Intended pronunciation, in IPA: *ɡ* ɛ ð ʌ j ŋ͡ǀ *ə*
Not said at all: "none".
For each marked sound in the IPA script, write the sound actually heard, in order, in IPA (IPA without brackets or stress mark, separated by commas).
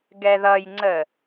ɡ, ə